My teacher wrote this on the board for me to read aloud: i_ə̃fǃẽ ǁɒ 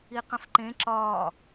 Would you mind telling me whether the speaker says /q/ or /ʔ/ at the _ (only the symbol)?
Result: q